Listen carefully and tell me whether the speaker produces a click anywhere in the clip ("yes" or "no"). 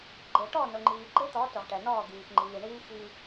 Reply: yes